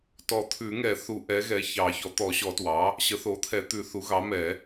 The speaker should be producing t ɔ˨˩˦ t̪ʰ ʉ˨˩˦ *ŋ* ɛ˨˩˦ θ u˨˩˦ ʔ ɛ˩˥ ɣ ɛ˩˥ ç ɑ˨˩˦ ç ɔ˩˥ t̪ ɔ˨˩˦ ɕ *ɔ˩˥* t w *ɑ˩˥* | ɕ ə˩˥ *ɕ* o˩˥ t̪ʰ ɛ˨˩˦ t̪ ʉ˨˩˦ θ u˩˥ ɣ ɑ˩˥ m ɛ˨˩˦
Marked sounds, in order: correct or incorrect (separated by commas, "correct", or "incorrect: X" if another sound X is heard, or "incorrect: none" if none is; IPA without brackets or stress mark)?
correct, incorrect: ɔ˨˩˦, correct, incorrect: θ